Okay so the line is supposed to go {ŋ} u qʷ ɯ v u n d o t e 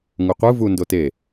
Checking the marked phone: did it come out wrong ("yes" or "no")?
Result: no